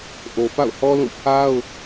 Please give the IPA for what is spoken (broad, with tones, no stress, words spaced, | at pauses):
ʔo˨ pa̰˦˨ʊ̯hɔ˦lũ˦˨ pʰa˦ʊ̯